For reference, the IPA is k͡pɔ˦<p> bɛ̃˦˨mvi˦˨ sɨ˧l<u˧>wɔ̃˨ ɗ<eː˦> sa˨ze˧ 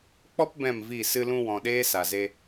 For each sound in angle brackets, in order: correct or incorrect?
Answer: correct, incorrect, correct

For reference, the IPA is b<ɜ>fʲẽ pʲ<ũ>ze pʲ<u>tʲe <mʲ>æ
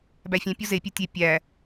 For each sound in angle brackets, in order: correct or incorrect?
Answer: incorrect, incorrect, correct, incorrect

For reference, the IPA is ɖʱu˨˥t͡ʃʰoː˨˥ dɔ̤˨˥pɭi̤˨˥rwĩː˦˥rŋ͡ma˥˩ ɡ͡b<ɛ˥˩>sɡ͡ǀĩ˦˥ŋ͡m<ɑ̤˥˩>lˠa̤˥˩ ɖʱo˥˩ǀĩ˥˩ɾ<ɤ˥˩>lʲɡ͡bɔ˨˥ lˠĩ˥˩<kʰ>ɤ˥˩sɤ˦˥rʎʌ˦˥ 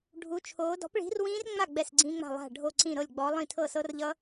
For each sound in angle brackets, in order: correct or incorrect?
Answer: correct, incorrect, correct, incorrect

